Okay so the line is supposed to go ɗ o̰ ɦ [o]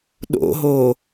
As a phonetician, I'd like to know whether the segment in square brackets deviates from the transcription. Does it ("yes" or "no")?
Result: no